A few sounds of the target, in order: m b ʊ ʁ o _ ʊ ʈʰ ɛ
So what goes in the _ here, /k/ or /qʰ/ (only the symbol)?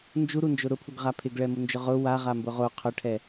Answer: qʰ